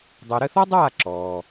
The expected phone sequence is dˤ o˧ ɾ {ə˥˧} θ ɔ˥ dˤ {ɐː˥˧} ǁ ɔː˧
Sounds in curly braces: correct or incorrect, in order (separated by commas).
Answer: correct, incorrect